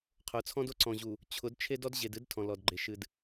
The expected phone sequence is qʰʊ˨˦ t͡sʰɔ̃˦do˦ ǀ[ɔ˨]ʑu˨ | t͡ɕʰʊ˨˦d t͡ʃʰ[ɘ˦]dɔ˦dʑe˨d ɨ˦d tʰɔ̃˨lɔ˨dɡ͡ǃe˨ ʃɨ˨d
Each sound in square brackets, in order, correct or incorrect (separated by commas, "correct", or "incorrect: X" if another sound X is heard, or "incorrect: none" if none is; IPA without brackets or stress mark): incorrect: ɔ̃˨, incorrect: e˦